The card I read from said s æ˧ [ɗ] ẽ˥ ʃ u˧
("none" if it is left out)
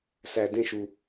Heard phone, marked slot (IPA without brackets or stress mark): d